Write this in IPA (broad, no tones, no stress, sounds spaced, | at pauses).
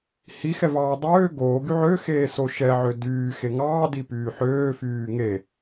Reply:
h i x ɛ v ɑː dˤ øː ɡ oː ɡ y ʕ ø x eː s o ʃ ɛ ʕ ø d yː x e ŋ ɑː d i p yː ħ øː f yː ŋ e